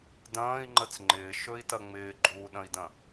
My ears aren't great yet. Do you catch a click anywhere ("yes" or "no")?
yes